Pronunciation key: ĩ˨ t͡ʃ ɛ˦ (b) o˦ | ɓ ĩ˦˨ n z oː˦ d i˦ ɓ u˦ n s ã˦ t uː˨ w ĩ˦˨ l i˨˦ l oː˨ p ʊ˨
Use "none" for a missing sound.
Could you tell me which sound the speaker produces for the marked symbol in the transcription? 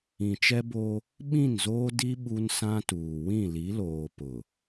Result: b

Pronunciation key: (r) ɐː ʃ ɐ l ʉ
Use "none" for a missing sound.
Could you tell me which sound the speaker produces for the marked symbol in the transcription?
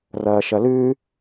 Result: r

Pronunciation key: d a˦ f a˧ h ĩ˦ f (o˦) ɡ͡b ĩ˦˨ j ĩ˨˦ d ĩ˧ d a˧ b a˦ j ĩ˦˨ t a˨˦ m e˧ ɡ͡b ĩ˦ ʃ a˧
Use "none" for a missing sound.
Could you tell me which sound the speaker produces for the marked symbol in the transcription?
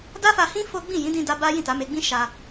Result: o˦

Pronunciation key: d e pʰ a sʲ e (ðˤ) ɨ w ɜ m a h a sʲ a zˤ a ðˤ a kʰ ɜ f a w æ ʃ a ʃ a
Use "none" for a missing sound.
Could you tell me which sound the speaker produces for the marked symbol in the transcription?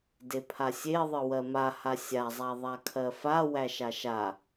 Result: ðˤ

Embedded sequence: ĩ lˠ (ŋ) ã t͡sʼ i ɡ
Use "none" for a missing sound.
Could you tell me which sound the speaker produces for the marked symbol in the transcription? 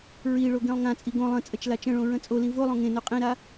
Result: ŋ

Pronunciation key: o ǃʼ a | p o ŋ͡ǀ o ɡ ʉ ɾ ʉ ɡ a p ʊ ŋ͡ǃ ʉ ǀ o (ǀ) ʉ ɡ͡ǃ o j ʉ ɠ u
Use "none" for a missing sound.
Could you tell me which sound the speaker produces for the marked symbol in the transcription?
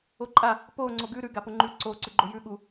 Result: ǀ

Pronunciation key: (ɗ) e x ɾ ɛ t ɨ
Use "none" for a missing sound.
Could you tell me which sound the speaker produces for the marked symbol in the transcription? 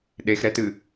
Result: ɗ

